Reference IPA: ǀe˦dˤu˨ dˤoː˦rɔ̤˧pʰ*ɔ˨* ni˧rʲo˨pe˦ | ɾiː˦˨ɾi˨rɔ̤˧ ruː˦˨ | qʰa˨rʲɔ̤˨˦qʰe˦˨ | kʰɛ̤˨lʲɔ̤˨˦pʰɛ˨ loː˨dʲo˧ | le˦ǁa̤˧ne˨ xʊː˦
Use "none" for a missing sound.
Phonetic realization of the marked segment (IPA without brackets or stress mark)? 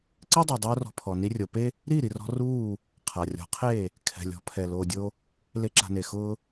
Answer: ɔ˨